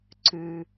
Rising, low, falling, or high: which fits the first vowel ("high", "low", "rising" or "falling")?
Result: low